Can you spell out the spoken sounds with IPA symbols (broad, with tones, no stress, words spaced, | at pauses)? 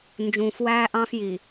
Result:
nd͡ʒũː˨fwæː˦ʔɑ̃˦fji˨